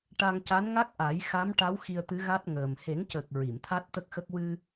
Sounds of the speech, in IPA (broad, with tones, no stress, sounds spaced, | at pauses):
ʈ a˧ ŋ c a˧˥ n ŋ a˦˥ k̚ ʔ a˨˩˦ j x a˧˥ m ʈ a˧˥ w x i˧ ə̯ t̪ ɨ˧˥ ɣ a˦˥ t̚ ŋ əː˨˩ m h e˨˩˦ ŋ c əː˨˩ k̚ ɹ i˨˩˨ m t̪ʰ a˦˥ t̚ t̪ ə˦˥ k̚ x ə˦˥ k̚ w ɨ˧